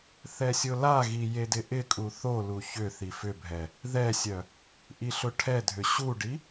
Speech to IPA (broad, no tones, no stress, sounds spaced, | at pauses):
θ ɛ sʲ ʊ l a ɣ i j e d ɪ ʔ ɪ kʼ u θ o l u ç ʏ θ i f ʏ bʱ ɛ | ð ɛ sʲ œ | ʔ i ɬ ʊ ʈʰ ɛ dʱ ʏ ɕ u ɖ i